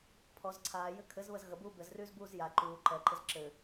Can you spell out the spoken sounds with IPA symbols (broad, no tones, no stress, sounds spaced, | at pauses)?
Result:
pʰ ɔ z ǀʰ aː j ɘ kʰ ɘ z β ə z ɣ ə b uː b ɘ z r yː z b uː z j a ǃ uː ǃ ɛ ǃ ɪ z ǁ ɘ